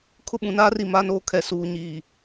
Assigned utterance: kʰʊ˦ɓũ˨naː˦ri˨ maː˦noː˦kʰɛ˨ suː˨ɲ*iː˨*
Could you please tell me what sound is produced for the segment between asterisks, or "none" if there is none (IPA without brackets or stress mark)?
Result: iː˨